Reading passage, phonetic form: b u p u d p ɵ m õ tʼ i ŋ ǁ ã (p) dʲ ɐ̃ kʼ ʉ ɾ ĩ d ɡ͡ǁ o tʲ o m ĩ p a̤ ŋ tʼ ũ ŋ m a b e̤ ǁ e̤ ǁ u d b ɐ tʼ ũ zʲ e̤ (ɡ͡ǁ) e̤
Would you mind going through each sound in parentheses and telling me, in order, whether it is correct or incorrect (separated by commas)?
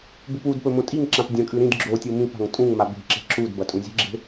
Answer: correct, correct